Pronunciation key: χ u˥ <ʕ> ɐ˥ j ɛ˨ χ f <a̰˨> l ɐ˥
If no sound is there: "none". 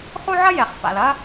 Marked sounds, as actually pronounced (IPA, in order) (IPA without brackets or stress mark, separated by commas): ʕ, a̰˨